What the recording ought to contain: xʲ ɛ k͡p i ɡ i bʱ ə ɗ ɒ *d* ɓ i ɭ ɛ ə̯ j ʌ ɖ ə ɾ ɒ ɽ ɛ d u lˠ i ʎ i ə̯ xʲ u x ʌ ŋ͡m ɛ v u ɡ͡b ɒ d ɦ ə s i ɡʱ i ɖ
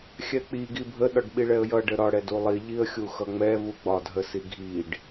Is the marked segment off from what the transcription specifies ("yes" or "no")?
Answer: yes